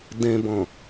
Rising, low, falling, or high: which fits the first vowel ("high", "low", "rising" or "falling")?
low